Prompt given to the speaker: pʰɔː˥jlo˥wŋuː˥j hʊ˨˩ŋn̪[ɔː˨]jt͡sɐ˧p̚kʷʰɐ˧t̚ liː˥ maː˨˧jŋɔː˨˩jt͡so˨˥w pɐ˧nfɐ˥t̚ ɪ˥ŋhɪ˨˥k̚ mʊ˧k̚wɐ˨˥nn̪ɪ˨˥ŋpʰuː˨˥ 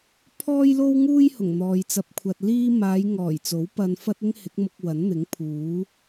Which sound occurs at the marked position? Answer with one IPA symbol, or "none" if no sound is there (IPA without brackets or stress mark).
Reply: ɔː˨